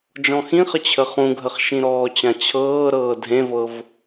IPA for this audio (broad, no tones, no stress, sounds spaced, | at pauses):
d͡ʒ ɔ̃ x ĩ χ ə t͡ɕʰ ə χ ũ ɡʱ ə χ ʃ ĩ ɾ ɔː t͡ɕ ã t͡ɕʰ ɤː ɾ ɤː dʱ ẽ v ɤ v